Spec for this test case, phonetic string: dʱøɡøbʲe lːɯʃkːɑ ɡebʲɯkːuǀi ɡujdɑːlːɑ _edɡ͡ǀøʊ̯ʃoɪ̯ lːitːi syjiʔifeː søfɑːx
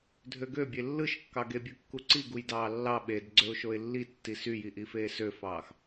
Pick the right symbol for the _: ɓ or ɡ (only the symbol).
ɓ